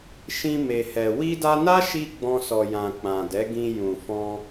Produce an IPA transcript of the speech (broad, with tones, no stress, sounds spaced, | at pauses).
ʃ ĩ˧ m e˨ h ɛ˨ w i˧ d a˧ n a˦ ʃ i˧ ɡ͡b ɔ̃˧ s ɔ˨ j ã˨ k͡p ã˨ d ɛ˨˦ ɡ ĩ˧ j ũ˨ f ɔ̃˧